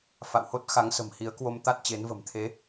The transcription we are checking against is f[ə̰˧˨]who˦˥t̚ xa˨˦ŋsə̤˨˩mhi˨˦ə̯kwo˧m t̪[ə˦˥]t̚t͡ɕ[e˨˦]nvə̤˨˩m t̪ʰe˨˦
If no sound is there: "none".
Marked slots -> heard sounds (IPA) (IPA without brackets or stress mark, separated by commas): a̰˧˨, a˦˥, e˨˦